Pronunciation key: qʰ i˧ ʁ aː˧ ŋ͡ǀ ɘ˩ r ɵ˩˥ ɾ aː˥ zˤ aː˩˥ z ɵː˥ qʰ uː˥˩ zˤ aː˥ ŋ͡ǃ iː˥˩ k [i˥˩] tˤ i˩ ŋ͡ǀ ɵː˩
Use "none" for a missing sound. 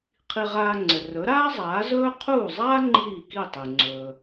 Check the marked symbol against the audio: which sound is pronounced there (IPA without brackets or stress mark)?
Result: i˥˩